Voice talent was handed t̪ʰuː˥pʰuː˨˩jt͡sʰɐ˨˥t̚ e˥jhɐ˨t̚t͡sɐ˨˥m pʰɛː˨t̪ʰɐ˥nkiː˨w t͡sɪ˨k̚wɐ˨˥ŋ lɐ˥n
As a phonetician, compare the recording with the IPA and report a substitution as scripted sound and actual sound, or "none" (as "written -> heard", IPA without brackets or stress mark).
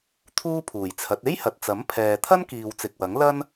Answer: none